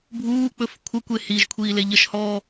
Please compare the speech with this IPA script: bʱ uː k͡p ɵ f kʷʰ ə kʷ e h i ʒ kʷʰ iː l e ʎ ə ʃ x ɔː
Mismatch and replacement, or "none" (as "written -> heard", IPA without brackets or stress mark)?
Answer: x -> h